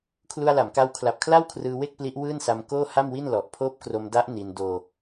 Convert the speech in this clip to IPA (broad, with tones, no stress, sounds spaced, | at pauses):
kʰ l u˧ a̯ l a˩˦ m k a˧ w kʰ l a˨˩ p̚ kʰ l a˥˩ w kʰ r ɯː˧ w e˥˩ k̚ p l i˦˥ ʔ w ɯː˥˩ n s a˧ m k oː˥˩ h a˥˩ m w i˥˩ n l ɔ˨˩ ʔ pʰ oː˦˥ p̚ k r o˧ m d a˦˥ ʔ n i˧ n d oː˧